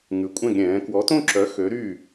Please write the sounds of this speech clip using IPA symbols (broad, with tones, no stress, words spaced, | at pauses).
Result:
ŋʉ˩˥kʷʼɛ̃˥˩ɡɾʲɛ̃ː˩˥ kwɔ˩˥tõ˥˩ǁœ˩˥ xø˩˥ɾy˥˩